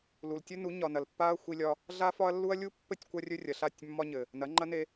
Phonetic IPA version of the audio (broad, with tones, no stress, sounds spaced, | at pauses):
l u˨ l tʲ ɵ˦ n u˨˦ ɲ ɒ˨ n ɐ˨ l pː a˦ ɐ̯ xʷ i˦ lʲ ɒ˦ | ɮ a˦ f ɒ˦ ɐ̯ lː u˦ ɐ̯ lʲ u˦ pː ɘ˦ tʲ kʷ ɐ˦ rʲ ɵ˦ rʲ ɐ˨ ɬ a˦˨ tʲ mː ɒ˦ ɲ ɘ˨ | n ɐ˨˦ ŋ͡ǃ ɐ˦ n e˦